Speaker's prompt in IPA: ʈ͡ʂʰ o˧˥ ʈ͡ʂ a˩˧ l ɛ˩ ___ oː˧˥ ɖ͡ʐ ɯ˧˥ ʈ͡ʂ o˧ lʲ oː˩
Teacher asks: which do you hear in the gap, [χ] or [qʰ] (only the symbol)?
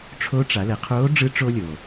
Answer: qʰ